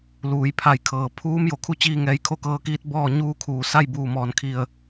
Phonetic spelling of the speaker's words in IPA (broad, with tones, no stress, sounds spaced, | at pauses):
l uː˩˧ j pʰ a˧˩ j kʰ ɤː˩ pʰ uː˧˥ m j o˩ kʰ u˥˨ t͡ɕ iː˥˨ ŋ ɛː˧ j kʰ o˧˥ k ɤː˧ k iː˧˥ t̚ b ɔː˥˨ ɲ uː˥˨ kʰ uː˧˩ s a˥˨ j b uː˧˩ m ɔː˧˩ n kʰ i˧˩ ə̯